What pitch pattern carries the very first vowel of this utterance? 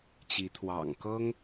rising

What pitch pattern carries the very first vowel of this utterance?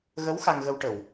rising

